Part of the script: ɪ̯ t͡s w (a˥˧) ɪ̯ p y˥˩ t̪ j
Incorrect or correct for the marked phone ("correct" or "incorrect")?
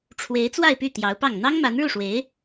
correct